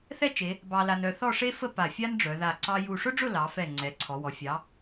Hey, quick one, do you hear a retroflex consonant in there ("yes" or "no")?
yes